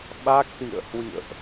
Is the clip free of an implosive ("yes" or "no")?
no